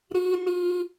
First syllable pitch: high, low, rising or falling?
high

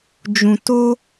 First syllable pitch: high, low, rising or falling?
low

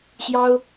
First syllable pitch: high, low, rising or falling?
high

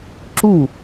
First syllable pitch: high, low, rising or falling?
falling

